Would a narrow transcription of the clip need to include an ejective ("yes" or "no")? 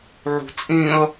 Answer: yes